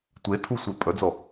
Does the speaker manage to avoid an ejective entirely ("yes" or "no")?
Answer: no